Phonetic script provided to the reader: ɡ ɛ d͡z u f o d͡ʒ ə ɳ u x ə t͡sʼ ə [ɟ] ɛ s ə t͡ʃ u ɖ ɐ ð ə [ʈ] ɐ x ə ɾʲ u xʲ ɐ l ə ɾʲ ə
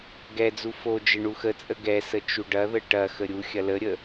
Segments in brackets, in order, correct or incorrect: incorrect: ɡ, correct

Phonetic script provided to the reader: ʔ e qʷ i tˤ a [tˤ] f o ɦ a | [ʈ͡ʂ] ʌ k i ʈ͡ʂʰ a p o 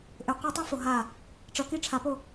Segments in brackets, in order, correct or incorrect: incorrect: none, correct

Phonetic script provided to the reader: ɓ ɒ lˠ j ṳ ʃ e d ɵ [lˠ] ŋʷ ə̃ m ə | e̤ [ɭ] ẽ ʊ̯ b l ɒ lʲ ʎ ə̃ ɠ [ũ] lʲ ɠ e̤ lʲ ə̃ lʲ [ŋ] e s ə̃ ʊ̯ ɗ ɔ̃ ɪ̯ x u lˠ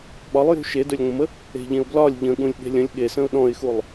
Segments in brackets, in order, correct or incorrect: incorrect: lʲ, incorrect: ʎ, correct, incorrect: ɠ

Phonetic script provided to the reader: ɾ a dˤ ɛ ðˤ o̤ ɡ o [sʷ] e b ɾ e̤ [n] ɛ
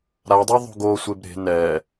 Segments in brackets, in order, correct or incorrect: correct, correct

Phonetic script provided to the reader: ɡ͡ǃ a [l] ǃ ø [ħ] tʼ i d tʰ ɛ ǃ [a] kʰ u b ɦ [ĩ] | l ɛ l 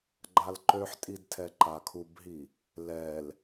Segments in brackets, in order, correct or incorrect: correct, correct, correct, incorrect: i

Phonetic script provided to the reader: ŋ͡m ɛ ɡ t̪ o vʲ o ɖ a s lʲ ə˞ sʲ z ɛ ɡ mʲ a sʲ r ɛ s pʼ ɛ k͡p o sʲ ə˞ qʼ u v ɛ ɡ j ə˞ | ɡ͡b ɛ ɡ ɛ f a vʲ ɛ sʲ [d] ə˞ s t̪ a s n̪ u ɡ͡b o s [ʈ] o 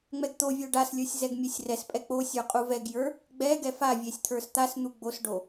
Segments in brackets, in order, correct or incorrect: incorrect: t̪ʰ, incorrect: ɖ

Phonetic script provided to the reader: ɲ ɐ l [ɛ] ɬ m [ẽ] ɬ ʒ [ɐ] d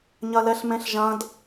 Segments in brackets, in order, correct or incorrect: correct, correct, incorrect: ɐ̃

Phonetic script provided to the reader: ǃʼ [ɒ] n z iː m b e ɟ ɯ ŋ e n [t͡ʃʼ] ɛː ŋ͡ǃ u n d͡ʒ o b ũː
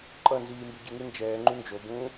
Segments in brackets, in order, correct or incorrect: incorrect: ʌ, incorrect: d͡ʒ

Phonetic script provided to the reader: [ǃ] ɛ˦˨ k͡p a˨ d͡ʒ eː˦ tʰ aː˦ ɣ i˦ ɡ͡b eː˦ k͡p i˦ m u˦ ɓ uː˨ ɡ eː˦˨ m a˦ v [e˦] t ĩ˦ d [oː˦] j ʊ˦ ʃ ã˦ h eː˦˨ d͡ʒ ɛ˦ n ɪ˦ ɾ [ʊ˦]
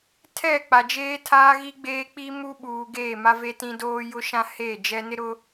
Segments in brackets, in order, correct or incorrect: incorrect: tʰ, correct, correct, correct

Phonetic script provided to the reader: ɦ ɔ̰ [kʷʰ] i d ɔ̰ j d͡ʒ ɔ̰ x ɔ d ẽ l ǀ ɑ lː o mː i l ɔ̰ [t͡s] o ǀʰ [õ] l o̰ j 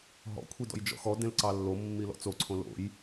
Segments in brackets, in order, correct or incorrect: correct, correct, correct

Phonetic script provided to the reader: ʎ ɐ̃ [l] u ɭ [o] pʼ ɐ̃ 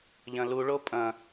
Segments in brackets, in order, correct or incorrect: correct, correct

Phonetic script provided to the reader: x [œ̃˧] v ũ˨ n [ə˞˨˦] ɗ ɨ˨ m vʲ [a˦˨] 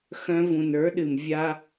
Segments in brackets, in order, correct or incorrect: correct, correct, incorrect: a˦

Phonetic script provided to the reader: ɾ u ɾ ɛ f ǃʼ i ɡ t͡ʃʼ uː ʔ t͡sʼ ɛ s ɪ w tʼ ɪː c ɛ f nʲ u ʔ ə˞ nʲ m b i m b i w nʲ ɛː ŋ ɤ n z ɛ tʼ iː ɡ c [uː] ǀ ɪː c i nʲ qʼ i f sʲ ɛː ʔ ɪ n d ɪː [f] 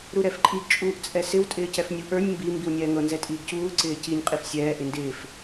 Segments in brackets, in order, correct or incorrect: correct, correct

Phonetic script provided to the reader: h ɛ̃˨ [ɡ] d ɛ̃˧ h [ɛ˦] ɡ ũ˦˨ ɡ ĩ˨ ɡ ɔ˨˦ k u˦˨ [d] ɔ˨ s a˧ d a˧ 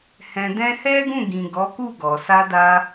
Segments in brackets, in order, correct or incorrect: incorrect: none, correct, incorrect: ɡ

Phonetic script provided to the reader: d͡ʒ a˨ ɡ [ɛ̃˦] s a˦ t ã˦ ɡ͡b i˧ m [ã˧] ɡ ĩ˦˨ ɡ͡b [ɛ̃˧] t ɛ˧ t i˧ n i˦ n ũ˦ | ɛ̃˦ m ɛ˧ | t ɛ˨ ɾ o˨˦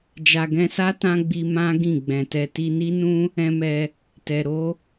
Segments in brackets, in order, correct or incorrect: incorrect: ɛ̃˧, incorrect: ã˦, incorrect: ɛ̃˨

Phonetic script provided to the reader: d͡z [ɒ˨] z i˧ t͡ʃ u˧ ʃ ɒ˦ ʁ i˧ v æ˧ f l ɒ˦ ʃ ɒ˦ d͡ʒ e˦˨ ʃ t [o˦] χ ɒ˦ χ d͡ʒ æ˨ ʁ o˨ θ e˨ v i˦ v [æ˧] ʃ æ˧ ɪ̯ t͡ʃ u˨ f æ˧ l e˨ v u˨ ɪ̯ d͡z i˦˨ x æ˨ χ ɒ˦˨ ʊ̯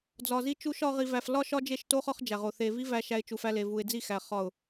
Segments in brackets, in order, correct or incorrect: correct, correct, correct

